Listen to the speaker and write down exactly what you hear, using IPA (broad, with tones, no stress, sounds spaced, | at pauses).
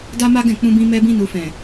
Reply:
d a˦ m a˦ ɡ ɛ̃˦˨ k͡p ũ˧ b ĩ˧ m ɛ˧ b ĩ˧ n u˨ f ɛ̃˨